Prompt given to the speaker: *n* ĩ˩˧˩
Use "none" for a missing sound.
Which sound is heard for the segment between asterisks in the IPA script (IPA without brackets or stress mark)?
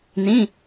n